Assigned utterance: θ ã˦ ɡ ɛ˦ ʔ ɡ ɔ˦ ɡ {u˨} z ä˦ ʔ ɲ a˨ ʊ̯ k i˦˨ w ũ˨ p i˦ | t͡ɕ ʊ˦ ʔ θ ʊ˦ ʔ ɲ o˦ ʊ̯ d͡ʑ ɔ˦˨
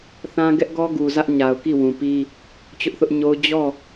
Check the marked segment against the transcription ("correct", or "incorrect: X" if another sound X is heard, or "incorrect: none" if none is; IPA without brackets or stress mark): correct